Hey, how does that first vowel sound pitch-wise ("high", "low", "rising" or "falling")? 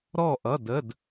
falling